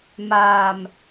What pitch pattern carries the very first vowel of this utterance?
low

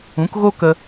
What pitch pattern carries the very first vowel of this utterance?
rising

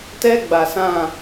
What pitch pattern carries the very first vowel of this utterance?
high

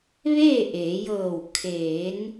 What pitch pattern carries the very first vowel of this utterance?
falling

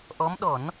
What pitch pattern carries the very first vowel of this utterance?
rising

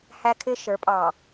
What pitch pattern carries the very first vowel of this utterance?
high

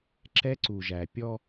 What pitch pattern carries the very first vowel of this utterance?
high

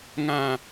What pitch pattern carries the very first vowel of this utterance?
low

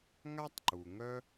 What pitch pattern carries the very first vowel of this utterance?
high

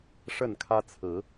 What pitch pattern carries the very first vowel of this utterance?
falling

